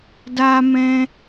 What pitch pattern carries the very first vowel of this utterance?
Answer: high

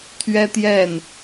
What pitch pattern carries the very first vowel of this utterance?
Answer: high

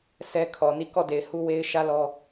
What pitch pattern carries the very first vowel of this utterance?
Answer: high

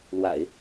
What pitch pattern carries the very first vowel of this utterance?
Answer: low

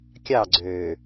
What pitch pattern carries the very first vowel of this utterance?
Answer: falling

